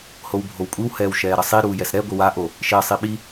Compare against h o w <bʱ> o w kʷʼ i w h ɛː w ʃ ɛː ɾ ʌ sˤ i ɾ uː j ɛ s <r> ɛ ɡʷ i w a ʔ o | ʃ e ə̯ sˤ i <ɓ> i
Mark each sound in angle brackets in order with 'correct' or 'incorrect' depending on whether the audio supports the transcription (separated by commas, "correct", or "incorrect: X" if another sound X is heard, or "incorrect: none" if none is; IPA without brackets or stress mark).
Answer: correct, incorrect: ɾ, correct